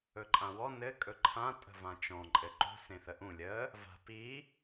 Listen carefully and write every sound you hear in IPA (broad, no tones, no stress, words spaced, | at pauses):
ɵǃʼãwɔ nɘ kʼɵǃʰã tʼə̤vãt͡ʃɔ̃ ǃʼɘǃṳ sẽθəʔũ lʲə | va̤pi